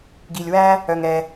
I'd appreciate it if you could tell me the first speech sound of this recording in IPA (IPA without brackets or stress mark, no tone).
ɡ